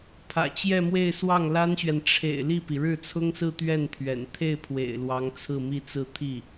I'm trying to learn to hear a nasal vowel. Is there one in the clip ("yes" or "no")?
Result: no